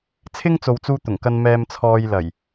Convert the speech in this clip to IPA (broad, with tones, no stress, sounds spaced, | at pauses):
t͡sʰ ɪ˥ ŋ t͡s o˨ w t͡s uː˧ t̪ ʊ˨˩ ŋ k ɐ˧ n m ɛː˧ m t͡sʰ ɔː˧ j l ɐ˨˩ j